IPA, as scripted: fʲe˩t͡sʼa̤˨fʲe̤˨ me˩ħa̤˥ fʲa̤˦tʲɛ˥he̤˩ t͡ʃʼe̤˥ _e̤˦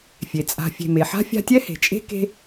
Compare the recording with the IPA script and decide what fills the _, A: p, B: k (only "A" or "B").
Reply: B